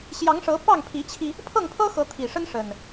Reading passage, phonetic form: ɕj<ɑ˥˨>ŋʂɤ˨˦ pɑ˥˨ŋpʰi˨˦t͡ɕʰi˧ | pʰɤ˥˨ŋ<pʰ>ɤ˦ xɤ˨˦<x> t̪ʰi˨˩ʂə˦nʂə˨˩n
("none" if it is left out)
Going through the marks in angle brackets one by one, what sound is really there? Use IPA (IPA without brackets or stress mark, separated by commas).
ɑ˨˦, pʰ, none